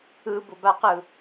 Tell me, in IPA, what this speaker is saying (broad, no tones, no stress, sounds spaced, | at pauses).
ɯ b ʊ b a q ɯ